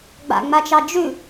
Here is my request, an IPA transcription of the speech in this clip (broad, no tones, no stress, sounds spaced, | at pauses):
ɡ͡b a̰ ŋ͡m a t͡ʃ ɑ d͡ʒ ʉ